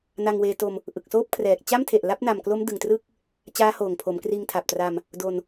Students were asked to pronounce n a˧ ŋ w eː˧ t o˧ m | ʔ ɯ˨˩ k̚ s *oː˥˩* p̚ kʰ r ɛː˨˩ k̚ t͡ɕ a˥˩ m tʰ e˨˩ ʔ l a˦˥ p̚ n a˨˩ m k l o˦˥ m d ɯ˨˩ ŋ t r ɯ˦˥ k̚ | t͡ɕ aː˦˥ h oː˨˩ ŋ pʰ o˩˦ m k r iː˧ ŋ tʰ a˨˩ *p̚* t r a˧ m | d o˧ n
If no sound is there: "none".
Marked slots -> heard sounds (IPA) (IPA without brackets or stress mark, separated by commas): oː˥˩, p̚